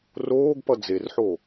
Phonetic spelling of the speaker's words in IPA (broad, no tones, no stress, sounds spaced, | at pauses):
r oː ɡ p ʌ d͡z e r ħ o